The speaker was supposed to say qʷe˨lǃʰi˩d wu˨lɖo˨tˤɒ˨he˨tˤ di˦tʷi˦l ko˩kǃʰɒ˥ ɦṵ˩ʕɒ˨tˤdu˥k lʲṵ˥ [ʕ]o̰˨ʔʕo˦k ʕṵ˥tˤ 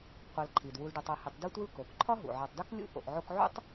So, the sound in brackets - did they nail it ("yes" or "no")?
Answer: no